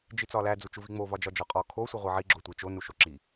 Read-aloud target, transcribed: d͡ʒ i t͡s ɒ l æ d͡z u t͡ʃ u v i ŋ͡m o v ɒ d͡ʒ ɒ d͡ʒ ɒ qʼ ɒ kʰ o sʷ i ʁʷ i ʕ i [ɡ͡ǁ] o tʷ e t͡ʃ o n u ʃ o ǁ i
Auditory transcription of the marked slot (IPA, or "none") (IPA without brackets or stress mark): ɡ͡ǁ